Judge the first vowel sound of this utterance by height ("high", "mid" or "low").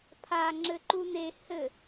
low